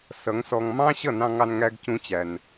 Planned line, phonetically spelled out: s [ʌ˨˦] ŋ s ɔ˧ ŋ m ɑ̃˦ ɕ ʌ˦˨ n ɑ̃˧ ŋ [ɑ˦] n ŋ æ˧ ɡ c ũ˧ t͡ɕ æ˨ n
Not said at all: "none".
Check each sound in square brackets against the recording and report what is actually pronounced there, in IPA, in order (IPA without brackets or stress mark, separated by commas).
ʌ˨˦, ɑ˧